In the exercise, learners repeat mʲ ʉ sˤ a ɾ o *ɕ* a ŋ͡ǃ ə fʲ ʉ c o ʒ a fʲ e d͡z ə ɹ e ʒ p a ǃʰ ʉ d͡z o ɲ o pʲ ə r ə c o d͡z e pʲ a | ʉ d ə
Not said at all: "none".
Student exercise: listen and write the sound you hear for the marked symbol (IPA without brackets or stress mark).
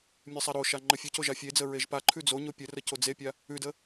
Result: ʃ